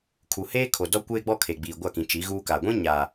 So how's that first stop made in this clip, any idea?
aspirated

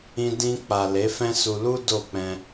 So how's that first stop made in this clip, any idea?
plain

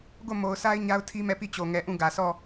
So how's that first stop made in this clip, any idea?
plain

